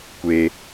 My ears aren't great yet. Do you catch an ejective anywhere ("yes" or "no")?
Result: no